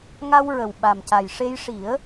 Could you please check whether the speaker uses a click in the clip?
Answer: no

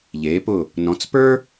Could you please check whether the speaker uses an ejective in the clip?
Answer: no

